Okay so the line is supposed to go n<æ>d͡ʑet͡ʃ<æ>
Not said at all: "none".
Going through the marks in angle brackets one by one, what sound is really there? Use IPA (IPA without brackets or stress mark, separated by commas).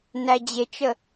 æ, ə